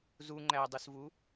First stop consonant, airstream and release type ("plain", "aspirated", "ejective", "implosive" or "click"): click